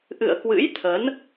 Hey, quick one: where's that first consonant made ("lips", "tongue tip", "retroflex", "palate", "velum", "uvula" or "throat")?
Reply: throat